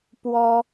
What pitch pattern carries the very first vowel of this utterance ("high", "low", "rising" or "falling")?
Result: high